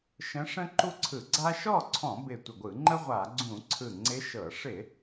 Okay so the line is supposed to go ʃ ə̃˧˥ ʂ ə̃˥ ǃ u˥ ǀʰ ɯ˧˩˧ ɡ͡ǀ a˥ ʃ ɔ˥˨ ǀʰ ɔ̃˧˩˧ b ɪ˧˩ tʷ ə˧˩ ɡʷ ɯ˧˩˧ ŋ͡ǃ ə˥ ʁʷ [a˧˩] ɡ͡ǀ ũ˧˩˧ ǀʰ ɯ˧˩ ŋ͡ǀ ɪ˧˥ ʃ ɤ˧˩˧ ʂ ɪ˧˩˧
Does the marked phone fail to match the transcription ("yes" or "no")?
yes